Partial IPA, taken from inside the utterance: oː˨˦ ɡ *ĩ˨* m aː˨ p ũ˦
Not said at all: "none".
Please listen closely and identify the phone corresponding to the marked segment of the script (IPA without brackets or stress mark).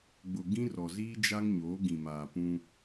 ĩ˨